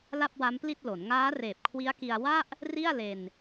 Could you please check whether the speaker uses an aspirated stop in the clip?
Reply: yes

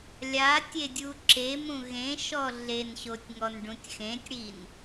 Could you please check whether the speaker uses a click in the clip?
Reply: yes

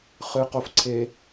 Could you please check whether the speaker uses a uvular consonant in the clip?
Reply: yes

